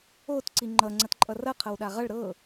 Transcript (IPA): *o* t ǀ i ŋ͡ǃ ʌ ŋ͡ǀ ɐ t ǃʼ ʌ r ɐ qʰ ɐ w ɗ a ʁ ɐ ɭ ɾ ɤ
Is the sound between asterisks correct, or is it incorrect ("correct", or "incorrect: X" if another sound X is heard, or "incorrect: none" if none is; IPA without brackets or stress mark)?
correct